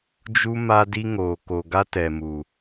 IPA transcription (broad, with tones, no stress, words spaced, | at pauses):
d͡ʒu˦ ma˦di˦ŋoː˨ ko˨ɡa˦tɛ˨mu˨